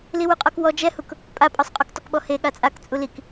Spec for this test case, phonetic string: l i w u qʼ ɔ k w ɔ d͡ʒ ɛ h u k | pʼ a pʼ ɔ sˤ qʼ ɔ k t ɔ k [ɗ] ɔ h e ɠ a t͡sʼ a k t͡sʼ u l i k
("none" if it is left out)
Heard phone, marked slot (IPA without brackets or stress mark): ɓ